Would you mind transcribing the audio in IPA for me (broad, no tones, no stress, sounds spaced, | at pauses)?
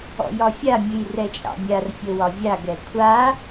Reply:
ɔ̰ j ɒ fʲ a mʲ ɨ j r ɛ t͡ʃʼ ɑ̰ mʲ a r fʲ o w ɒ vʲ a ɡ ɛ kʷʰ a